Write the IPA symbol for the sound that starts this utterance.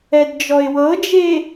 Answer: ɛ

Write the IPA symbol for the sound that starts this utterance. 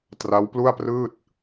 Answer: t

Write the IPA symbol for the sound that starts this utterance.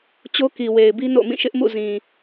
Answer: t͡ɕ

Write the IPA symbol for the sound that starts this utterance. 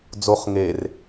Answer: d͡z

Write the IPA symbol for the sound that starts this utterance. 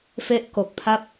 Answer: f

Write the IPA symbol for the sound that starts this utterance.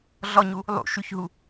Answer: ɮ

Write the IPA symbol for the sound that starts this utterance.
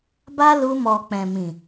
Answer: b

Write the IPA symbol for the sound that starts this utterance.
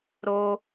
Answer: ɾ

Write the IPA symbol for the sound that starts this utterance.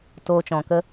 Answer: t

